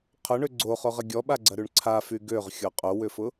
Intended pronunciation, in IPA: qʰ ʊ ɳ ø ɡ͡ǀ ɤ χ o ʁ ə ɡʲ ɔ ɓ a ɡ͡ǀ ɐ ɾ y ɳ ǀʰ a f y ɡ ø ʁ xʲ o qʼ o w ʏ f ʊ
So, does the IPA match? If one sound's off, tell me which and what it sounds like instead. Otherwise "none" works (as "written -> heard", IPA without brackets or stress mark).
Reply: ɤ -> o